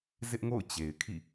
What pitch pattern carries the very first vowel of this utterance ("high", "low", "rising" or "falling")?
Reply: high